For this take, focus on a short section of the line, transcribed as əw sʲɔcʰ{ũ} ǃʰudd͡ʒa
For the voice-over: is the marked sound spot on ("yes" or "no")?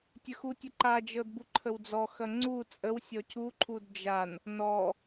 no